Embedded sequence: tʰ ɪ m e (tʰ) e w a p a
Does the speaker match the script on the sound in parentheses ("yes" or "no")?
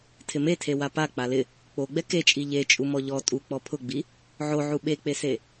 yes